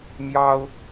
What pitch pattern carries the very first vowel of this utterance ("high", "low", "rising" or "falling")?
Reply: high